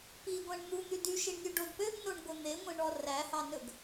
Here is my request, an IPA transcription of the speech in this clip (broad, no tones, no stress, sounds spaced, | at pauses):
p i ɡʷ æ̃ ɳ n̪ u n̪ y d y ʃ i ɳ nʲ u ɖ o d p ø ɡ n o ɳ ɡʷ e n̪ e ŋʷ ẽ ɳ ɔ r æ h ɑ n ɵ ɡ